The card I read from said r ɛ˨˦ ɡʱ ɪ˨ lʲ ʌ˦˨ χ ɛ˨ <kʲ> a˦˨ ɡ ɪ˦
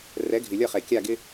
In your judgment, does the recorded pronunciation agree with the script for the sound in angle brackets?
yes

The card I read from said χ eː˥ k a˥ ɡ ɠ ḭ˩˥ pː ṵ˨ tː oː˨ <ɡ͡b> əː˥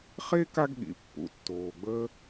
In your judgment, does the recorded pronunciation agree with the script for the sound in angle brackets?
yes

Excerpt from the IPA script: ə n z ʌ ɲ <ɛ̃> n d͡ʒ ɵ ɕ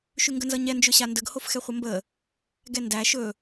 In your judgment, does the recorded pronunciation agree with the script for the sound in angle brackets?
no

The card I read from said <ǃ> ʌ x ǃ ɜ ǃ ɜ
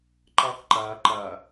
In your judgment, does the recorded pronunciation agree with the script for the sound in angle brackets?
yes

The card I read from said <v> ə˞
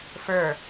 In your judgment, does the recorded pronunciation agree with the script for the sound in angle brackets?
no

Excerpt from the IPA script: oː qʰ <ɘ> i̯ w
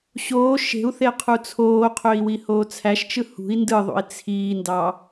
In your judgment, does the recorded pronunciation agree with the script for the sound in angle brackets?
no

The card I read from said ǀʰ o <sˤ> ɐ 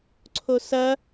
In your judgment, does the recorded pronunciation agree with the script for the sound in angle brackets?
no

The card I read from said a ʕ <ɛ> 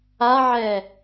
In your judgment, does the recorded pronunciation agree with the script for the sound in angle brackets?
yes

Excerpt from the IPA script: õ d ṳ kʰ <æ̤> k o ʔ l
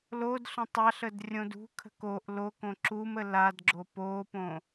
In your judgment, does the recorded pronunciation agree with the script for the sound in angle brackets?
no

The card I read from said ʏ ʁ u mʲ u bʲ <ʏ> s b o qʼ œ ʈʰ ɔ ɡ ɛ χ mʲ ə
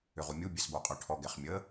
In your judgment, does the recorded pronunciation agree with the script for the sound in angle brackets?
no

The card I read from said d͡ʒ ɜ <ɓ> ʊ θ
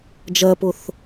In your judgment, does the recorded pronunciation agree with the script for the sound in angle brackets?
no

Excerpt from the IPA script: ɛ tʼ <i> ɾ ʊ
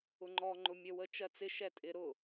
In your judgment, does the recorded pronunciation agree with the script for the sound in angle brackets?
no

